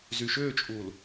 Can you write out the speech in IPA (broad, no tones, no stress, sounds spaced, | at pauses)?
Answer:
z y ʃ ʏː t͡ʃʼ uː l